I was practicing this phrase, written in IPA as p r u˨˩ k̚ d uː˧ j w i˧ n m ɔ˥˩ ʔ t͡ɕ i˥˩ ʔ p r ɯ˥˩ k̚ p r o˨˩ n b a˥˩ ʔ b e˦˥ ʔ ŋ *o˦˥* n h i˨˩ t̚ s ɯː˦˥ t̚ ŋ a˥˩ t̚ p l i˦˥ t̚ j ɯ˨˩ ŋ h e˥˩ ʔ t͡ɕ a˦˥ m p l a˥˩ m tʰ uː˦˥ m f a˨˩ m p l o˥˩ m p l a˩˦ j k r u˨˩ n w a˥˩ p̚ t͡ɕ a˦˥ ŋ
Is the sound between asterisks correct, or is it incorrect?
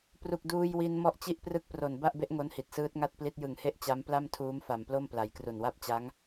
correct